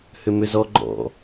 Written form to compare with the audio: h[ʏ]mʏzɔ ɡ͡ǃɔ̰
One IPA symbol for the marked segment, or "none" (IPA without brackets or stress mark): ʏ